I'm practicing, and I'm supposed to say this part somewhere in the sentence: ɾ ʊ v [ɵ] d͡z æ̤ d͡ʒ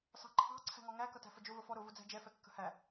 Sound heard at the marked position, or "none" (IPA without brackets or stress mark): ʊ